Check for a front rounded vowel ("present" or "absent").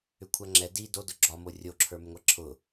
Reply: present